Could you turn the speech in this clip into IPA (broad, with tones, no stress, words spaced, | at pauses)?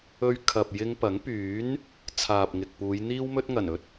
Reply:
ɵ˧ɥkʰɐ˨p̚ jɪ˧ŋpɐ˨˥ŋ pyː˨˥n | t͡sʰaː˨p̚ŋɪ˨k̚puː˨˧j n̪iː˥wmɵ˥t̚ŋɐ˨˩n ɵ˥t̚